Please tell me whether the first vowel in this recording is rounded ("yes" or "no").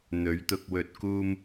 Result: yes